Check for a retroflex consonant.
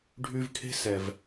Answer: present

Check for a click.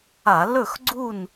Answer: present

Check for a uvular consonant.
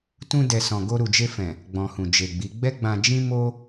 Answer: absent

